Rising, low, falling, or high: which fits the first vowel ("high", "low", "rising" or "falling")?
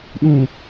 low